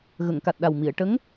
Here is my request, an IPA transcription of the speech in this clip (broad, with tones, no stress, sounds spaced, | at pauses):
ɣ ə˨˩˨ ŋ k a˨˩ t̚ ɗ a˨˩ w m i˨˩˨ ə̯ ʈ ə˧˥ ŋ